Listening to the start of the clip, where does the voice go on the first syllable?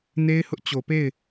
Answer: high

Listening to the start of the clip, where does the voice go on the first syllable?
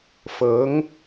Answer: rising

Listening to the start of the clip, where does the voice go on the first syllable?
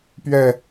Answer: falling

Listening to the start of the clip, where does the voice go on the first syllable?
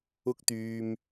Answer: high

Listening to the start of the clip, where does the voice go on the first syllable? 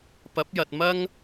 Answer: rising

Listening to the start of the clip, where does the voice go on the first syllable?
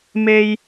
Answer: high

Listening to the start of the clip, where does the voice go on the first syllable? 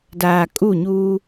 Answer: low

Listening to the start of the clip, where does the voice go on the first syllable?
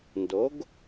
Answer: rising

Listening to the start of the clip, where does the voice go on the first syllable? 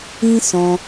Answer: high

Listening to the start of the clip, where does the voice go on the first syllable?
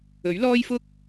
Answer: rising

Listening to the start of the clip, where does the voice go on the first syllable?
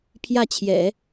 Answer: falling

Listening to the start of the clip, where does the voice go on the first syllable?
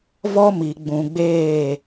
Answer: high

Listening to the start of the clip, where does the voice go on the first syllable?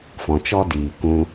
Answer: low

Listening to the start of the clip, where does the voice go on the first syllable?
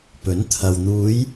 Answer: rising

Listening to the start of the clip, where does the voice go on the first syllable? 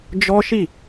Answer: high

